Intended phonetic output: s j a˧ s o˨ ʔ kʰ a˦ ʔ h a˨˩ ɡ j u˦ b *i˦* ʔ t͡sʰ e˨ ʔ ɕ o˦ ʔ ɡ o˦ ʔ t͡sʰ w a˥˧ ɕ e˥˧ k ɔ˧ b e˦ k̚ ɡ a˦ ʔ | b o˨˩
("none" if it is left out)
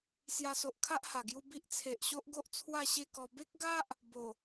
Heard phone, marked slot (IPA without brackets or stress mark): i˦